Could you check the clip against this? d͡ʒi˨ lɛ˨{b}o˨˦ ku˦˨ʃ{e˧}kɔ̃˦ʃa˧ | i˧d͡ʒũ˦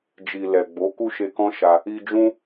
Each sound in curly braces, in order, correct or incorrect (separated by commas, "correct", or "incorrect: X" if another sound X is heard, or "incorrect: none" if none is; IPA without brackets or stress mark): incorrect: ɡ͡b, correct